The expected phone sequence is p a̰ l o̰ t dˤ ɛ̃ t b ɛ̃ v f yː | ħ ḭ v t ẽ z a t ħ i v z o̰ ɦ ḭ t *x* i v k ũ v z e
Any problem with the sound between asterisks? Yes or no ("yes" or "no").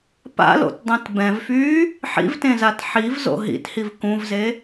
yes